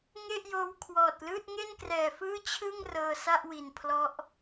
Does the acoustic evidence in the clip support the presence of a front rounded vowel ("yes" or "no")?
no